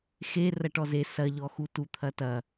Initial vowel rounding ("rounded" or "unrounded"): unrounded